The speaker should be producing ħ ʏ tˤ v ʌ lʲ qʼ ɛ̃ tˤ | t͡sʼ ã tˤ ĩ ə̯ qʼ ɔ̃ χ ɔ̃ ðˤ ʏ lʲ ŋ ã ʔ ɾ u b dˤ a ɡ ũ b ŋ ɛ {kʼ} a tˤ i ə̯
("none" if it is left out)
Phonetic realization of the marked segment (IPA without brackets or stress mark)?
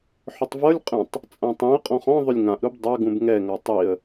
ŋ